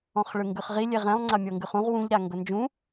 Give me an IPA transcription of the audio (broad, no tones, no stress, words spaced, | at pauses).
ɔ̃χɭɯŋɡɯχʁi lʲeʁɛ̃lˠ ŋ͡ǀamʲɤŋɡɯχũʁ wũʎ ɾaŋɡɤnd͡ʒũ